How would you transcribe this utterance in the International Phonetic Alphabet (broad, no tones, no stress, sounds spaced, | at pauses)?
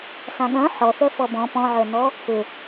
s ã ɠ œ̃ ħ ɔ θ œ f ɔ b ɔ̃ p ɔ̃ ʕ œ n ɔ | p ʏ